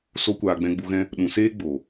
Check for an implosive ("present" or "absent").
present